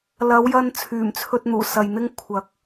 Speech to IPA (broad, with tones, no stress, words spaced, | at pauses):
lɐ˨˧wjɐ˧n t͡sʰyː˨˩mt͡sʰɵ˧t̚n̪uː˨˩ sɐ˨jn̪ɪ˥ŋ kʷʰɐ˨˥k̚